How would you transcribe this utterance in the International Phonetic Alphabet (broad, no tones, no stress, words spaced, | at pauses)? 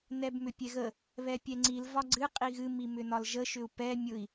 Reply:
nɛbmʏpʲɛɣə | βɛpʲɛŋ͡ǀil vɒɡ͡ǀɨ qʼiɣɨ mimʏnɒlʒə ʃʏu̯pɛ mʲʊi̯